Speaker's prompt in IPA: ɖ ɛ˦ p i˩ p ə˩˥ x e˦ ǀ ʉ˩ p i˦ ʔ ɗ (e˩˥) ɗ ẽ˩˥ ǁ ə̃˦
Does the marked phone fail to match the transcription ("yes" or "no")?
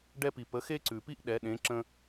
yes